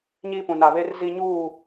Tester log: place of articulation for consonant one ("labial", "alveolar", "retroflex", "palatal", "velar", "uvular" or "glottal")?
palatal